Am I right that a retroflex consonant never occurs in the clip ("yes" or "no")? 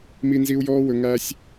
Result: yes